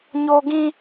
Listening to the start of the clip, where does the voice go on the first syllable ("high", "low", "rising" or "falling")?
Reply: high